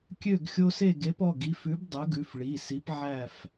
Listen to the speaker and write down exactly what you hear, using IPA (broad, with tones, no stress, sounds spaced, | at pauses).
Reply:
kʲ ø˥˨ ɡ xʲ o˦ s e˥˨ ɡ e˨˦ p ɔ˩˧˩ ɡ i˩˧˩ f ʉ˨˦ b dˤ ɵ˨˦ ɡ ʉ˩˧˩ f ɭ i˩˧˩ s i˨˦ p ʕ æ˥˨ f